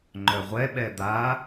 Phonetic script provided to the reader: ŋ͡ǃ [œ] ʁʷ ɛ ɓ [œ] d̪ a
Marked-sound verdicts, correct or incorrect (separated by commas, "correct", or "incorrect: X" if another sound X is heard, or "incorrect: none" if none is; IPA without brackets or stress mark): correct, incorrect: ɛ